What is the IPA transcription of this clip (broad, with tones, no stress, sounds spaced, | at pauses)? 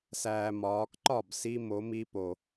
s æː˨ m ɒː˨˦ k ǃ ɒ˦˨ b s i˦ m o˨˦ m i˦ p o˨